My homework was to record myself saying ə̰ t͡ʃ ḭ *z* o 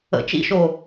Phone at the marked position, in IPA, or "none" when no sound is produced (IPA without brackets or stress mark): ʃ